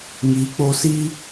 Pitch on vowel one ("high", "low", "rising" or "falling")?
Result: rising